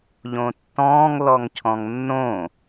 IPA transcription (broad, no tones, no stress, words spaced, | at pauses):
ʎõtːɔ̃ːŋ lɔŋcʰɔ̃ŋnːõ